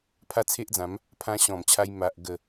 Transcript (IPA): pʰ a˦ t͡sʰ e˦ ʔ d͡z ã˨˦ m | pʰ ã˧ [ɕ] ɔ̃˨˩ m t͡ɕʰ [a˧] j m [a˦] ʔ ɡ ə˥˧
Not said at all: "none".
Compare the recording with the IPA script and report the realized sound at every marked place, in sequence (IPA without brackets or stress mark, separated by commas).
ɕ, a˧, a˦